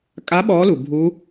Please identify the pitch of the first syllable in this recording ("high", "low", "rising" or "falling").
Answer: rising